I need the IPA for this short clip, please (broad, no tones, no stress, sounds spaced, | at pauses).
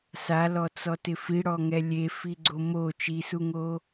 s a l ɔ t͡s ɔ t ɪ f i ɽ ɔ ŋ ɛ lʲ e f i ɡ͡ǀ o m o t͡ʃ i s u ŋ o